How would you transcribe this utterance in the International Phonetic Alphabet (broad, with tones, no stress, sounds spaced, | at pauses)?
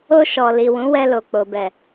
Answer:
o˧ ʃ ɔ˨ l i˨ w ũ˨˦ w ɛ˧ l o˨ k͡p o˨ b ɛ˨